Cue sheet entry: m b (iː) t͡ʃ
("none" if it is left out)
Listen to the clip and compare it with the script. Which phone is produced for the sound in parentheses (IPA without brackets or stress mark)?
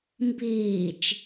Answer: iː